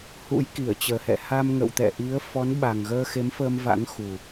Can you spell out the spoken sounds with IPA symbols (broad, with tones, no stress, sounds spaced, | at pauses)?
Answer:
h ṵ˧˥ j k i˧˩ ə̯ t͡ɕ əː˨˩ h ɛ̰˧˨ h a˧ m ŋ ə̰˧˨ w t̪ ɛ̰˧˨ ʔ i˨˦ ə̯ f ɔ˨˦ n ɓ a˨˩ ŋ ɣ əː˧ x e˨˦ m f əː˧ m v a̰˧˥ ŋ x u˨˩